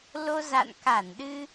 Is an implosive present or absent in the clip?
present